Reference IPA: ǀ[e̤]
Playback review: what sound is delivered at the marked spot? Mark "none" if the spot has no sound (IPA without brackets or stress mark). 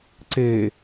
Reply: e